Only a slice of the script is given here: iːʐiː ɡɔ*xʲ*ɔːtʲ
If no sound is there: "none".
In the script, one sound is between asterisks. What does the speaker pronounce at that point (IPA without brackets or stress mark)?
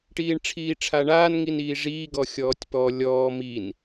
xʲ